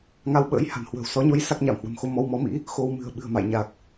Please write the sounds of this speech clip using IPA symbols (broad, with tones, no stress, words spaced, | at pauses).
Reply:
ŋa˧wɓə̰ː˧˥j ha̤˨˩nhwə̤ː˨˩wsɔ˨˦ɲo˧j sa˦˥k̚ɲa˧˩mhwə̤˨˩mxo˧ mɔ˧wmɔ˨˦mḭ˧˥ | xo˧w mɨ̤˨˩ə̯ ɓɨ̤˨˩ə̯ma̰˧˨j ɲa˨˩k̚